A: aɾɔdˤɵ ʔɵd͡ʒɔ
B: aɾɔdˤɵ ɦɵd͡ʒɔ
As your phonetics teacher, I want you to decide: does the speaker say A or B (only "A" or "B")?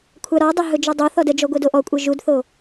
B